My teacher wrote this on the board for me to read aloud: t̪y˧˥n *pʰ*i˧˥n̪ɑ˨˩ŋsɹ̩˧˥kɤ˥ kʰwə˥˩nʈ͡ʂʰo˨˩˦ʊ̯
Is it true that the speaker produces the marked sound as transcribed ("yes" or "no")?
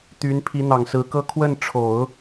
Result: yes